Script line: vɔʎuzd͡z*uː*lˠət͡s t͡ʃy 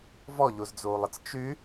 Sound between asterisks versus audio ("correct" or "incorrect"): correct